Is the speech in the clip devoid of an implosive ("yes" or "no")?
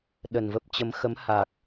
no